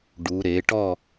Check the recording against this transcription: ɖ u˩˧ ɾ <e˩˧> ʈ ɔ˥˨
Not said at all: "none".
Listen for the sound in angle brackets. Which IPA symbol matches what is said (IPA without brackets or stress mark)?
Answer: e˩˧